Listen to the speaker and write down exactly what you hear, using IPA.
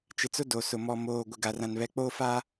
t͡ʃɪ˨t͡sʊ˦ do˨sʊ˨ mɔ˨moː˨ɡʷɪ˨ɡa˨ rã˨nβɛ˨k͡poː˦fa˦

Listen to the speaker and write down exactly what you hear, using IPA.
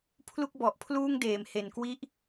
pʰlu˥˩k̚bɔ˨˩ʔpʰluː˥˩ŋdeː˩˦m he˨˩nkwi˥˩ʔ

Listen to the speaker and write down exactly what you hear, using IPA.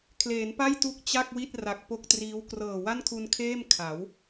kʰleː˩˦npa˥˩j tu˥˩k̚t͡ɕa˥˩k̚wi˥˩t̚ ra˨˩k̚po˥˩k̚triː˦˥w krɤː˨˩wa˥˩nkʰu˧nkʰeː˥˩m kʰa˩˦w

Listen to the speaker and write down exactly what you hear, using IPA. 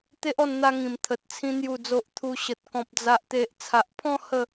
t̪e˦ʔɔ˧nn̪a˧ŋĩ˨˩m t̪ʰə˨t̚t͡sʰĩ˧ n̪ju˨˩d͡zo˨ʔ t̪ʰu˧ɕə˨t̚ kɔ̃˨p̚d͡za˨ʔt̪e˨ʔ t͡sʰa˨ʔpʰɔ̃˥˧ hə˥˧

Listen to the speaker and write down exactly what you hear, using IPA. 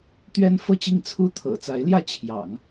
t̪ɥɛ˥n fɤ˥˧t͡ɕi˥˩ŋ t͡sʰu˥ t̪ʰɤ̰˨˩t͡sa˧˥ɪ̯ ljä˥˩t͡ɕʰjɑ̰˨˩˦ŋ

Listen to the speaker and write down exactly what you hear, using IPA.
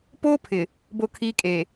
poː˦pʰɪ˨ | bo˦˨ kʰiː˦kʼeː˨

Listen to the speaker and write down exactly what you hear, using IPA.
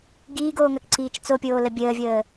ɡiːɡoːŋɐkǀiːt͡ʃ t͡sopʲoːlə bʲəːvʲəː

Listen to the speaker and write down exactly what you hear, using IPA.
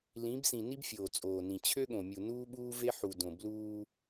lĩ˨˦bsĩ˨ ni˦bfʲoː˨ t͡sʼoː˨nĩ˨ t͡ɕʰø˦ɠõ˨mʲu˨ nuː˦ɓuː˦ve˦ ħu˨dõ˨ bluː˦

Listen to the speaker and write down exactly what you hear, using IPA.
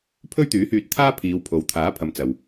pʰɵ˥ɥt̪yː˨˥hyː˧t̚ t̪ʰaː˥pʰiː˨˧wpʰo˨w t̪ʰaː˨˥pʰɐ˨˧m t͡sɐ˨w

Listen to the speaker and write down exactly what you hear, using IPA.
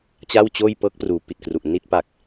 t͡ɕa˥˩wt͡ɕoː˥˩j pɤː˦˥k̚pruː˩˦pi˨˩t̚kru˨˩ʔ ni˥˩t̚pa˨˩k̚

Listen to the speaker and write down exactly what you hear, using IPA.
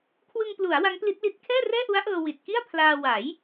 kʰwɯ˧ŋplu˩˦a̯ wa˦˥ŋpli˦˥t̚li˦˥t̚ kʰɛː˥˩rɛː˥˩ʔu˦˥a̯ʔɤː˧ wi˨˩t̚ ki˥˩a̯pʰlaː˧ wa˩˦j

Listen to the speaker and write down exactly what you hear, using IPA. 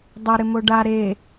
dˤɐ ɾɪmoɖa ɾe

